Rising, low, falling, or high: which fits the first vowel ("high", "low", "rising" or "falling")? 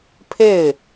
falling